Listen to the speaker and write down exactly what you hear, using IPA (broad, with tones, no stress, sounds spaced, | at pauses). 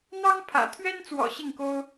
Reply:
n̪ ɑ˥ ŋ pʰ ä̰˨˩ t̪ʰ ɥ ɛ˥ n t͡s w ɔ̰˨˩ ɕ i˥˩ ŋ k o˥ ʊ̯